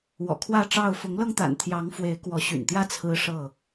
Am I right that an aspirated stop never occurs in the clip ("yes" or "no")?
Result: no